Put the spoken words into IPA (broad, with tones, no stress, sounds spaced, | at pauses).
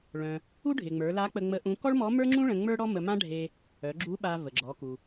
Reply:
ɭ œ̃˩ | u˥ ɖʱ ɪ˩ ŋ͡m ə˞˩˧ l a˧˥ k͡p ə˧ ŋ͡m ə˧˥ ʔ ũ˧˥ k ɔ˥ ɭ m ɔ˧˥ m ə˞˥ ŋ͡ǁ ũ˥ ɭ ə̃˧ ŋ͡m ə˞˥ ɽ ɔ˥ m ə˧ m ã˥ ɖʱ e˧ | œ˩˧ ɡ͡ǁ u˧˥ ɓ a˧ v ə˩ ɡ͡ǁ ɔ˩˧ k u˩